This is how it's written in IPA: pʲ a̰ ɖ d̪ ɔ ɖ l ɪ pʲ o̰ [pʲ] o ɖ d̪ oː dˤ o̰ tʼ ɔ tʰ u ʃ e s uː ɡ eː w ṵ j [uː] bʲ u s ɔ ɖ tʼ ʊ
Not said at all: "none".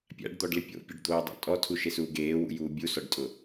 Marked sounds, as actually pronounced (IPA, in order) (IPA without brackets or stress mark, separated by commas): pʲ, uː